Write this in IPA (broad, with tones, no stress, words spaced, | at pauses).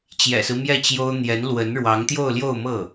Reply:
t͡ɕjɛ̰˨˩sɹ̩˦ mjɛ˥˩t͡ɕjo˥ʊ̯ n̪jɛ˧˥nlwə˧˥n ɻwɑ˧˥ŋt̪jo˥˧ʊ̯ ljo˥˧ʊ̯mɤ˥˩